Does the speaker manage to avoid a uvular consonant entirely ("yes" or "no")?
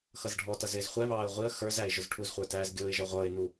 no